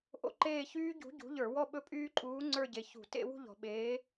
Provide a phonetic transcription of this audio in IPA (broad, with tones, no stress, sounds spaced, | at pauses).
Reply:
ʔ o̰˥˧ ǃ eː˥˧ ç yː˦˥ ɟ ṳ˨˥ ɟ ṳ˨˥ ʎ ə˞˧˩˧ w ɔ˥˧ ɓ ɵ˦˥ pʼ yː˦˥ ǃʼ uː˨˥ ŋ͡ǀ ə˞˥˧ ɟ e˩˧ ç ṳ˧˩˧ t ḛ˥˧ w ṳ˥˧ ʎ ɔ̤˨˩ ɓ eː˨˥